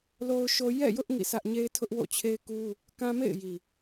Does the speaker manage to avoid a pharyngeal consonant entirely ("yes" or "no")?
yes